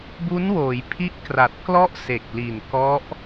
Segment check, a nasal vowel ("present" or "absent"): absent